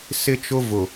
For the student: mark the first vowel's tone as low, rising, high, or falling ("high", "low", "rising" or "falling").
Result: high